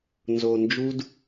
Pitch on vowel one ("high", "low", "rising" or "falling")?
low